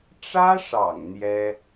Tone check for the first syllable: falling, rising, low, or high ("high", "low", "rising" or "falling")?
high